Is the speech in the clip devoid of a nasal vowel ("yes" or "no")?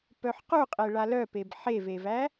yes